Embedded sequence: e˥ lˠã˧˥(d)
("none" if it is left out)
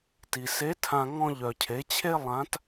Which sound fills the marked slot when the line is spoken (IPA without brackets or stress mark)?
t